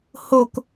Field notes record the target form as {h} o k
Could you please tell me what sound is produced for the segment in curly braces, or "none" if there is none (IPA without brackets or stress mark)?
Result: h